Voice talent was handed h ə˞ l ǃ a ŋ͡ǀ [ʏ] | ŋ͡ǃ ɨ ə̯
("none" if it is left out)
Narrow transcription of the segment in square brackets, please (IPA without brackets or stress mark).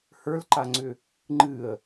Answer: ʏ